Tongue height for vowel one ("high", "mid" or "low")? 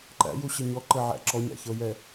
low